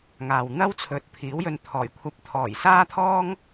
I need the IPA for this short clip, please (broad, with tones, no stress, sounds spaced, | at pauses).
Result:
ŋ aː˨ w n̪ ɐ˥ w t͡sʰ ɵ˨˥ t̚ pʰ iː˨˥ w j ɵ˧ n t̪ʰ ɔː˨˩ j kʷʰ ɐ˧ p̚ t̪ʰ ɔː˨˩ j s aː˥ t̪ʰ ɔː˥ ŋ